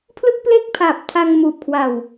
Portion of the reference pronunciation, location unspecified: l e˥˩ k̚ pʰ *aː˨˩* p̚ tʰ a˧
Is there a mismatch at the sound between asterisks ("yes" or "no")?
no